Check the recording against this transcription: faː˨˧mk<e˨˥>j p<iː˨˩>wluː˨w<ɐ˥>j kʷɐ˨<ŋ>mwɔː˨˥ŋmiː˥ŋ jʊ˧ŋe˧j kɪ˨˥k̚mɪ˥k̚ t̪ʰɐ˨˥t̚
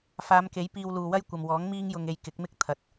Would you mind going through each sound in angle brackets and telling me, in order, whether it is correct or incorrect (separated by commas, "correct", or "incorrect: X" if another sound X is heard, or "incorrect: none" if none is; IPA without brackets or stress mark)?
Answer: correct, incorrect: iː˧, correct, incorrect: none